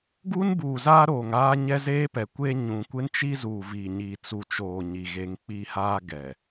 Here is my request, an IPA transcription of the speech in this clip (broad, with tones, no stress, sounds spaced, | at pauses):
ɡ u˦ n b uː˨ z aː˦ ɾ oː˨ ŋ aː˦ ɲ ɛ˦ z eː˦ p ɛ˨ kʷ eː˦ ɲ ũ˨ kʷ ɪ˦ n t͡ʃ i˦ z uː˨ v i˨ ɲ i˨ t͡s u˨ t͡ʃ oː˨ ɲ i˨ ɣ e˨˦ ŋ k͡p i˦˨ h aː˦ ɡ ɛ˨